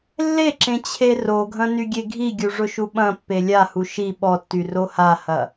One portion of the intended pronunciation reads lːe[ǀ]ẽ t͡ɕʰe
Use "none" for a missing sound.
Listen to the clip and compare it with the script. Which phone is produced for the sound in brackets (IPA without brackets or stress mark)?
ǁ